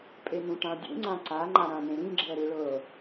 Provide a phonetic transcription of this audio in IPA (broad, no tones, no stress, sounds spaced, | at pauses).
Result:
pʼ e n ũ ʈ ã dʲ ṵ ŋ͡ǀ ã ǀ a ŋ͡ǃ a ɾ ã n ẽ ɾ ĩ ɡ͡ǁ ɛ ɾ ɯ ɭ ɤ